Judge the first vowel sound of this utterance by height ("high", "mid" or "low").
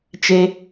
mid